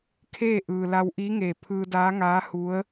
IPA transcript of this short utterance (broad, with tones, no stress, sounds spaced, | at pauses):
kʰ eː˥˨ ʔ ɯː˩ l a˧ w ʔ iː˧˥ ŋ eː˧˩ pʰ ɯː˧ d aː˧˥ ŋ aː˧˥ h u˧˥ ə̯